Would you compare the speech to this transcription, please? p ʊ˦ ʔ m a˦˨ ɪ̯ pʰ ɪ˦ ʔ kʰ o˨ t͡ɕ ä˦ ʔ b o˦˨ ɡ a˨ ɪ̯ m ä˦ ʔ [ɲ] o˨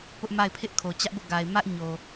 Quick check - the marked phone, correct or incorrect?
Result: correct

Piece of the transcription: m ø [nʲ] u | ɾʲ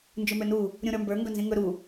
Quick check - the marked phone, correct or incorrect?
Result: incorrect: n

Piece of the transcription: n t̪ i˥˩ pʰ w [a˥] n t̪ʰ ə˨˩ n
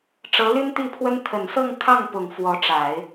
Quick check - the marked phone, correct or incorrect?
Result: incorrect: ə˥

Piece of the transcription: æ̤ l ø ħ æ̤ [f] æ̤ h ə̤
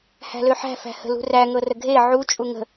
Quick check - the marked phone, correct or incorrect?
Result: correct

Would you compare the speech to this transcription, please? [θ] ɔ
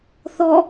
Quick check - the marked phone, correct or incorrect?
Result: correct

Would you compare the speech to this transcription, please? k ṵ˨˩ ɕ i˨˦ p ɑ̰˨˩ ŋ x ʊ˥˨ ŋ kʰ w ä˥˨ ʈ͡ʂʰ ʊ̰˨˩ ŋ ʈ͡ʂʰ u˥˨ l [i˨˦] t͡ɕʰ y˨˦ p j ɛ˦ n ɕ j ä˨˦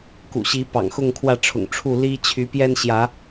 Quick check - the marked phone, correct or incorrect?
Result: incorrect: i˦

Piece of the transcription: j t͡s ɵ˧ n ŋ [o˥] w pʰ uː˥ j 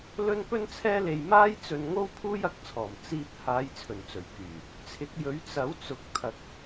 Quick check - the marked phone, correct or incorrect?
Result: correct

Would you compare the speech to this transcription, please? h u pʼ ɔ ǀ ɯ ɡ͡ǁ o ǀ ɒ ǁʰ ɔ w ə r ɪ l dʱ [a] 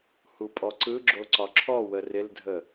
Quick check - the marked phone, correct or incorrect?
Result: incorrect: ə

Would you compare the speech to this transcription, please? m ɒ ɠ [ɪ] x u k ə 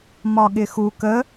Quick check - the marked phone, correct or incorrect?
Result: correct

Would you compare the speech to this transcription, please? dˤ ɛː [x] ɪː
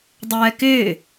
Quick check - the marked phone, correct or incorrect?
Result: incorrect: k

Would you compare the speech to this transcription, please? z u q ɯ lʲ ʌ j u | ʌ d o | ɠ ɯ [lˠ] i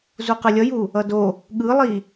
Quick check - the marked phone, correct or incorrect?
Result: correct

